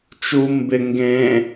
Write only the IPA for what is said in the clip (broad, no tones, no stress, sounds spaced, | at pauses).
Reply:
t͡ʃ u m b ɪ ŋ ɡ ẽ